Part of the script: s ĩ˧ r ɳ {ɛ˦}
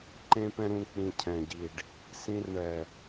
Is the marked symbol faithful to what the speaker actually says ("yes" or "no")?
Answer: no